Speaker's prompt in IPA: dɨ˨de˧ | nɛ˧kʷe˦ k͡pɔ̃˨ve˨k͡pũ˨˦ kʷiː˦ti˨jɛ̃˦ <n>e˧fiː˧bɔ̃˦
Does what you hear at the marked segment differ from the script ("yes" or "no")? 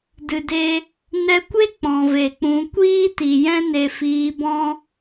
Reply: no